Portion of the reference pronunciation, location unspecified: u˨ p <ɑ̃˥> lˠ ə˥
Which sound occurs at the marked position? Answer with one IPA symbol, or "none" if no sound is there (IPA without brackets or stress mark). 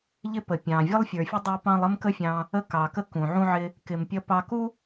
ɑ̃˦